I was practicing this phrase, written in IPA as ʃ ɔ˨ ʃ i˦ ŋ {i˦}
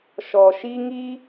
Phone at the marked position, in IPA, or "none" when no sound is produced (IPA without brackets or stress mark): i˦